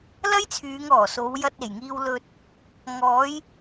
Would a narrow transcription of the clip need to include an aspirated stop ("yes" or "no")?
yes